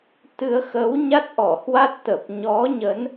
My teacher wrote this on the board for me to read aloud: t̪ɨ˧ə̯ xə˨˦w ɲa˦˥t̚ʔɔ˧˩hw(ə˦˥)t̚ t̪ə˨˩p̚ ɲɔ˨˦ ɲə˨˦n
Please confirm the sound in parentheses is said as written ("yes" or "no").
no